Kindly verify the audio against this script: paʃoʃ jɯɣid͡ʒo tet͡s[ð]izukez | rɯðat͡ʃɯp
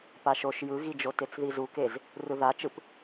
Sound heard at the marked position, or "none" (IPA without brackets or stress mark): ð